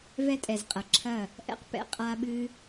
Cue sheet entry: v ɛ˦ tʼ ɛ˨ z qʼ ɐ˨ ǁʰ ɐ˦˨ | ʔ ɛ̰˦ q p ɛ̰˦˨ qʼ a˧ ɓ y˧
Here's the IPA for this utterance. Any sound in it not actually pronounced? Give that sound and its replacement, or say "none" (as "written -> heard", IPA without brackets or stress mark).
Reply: y˧ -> ɨ˧